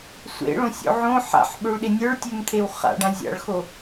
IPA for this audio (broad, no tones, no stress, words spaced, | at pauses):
sʷḛɭõsʲo̰ ʕõ ħa̰ħɓøɭɗe nʲə˞ɭtʲømt̪ʰew χa̰ɖã zʲa̰ɭxo